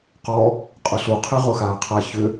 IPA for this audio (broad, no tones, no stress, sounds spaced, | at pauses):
q ɔ | qʼ ʊ ɬ u qʰ e ʁ ʊ x aː qʰ a ç ʏ